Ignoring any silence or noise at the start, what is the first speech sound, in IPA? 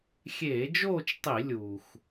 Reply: xʲ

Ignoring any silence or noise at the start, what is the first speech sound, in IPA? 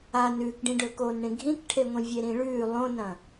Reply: a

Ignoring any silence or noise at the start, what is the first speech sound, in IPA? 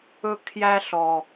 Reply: ɵ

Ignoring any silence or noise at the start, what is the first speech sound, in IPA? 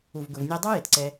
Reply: u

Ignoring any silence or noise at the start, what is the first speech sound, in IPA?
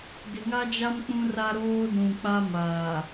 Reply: d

